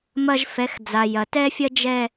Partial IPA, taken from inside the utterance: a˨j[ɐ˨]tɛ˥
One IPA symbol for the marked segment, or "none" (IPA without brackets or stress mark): ɐ˨